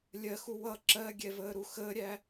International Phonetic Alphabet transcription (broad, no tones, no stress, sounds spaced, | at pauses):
lʲ ɜ x u w ʌ ǁ ɜ ɡʲ ɛ v əː ɾ u x əː ɾʲ æ